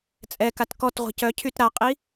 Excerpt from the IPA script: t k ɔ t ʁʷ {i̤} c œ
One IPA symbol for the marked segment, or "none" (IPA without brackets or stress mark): i̤